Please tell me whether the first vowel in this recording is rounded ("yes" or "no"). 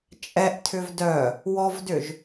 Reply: no